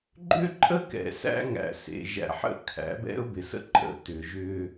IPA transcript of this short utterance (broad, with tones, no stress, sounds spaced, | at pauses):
ɡ͡ǃ ʏ˦ ǃʼ ə˦ k ɛ̰˨ s æ̰˦ ŋ æ̰˨ s ḛ˨ ʒ æ̰˨ ħ ə̰˦˨ kʰ æ̰˨˦ b ɛ̰˦ ʊ̯ b ɪ˨ s ə̰˦ ǃʼ ə̰˨ t ʏ˨ ʒ ʏ˦